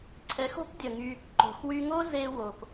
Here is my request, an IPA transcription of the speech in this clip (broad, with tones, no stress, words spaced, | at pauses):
ǀʰɛ˨˦xo̤˦p dʲə˨ŋy˧ | ǃo̤˨xwy˧ŋo˦ ze˧wo˨p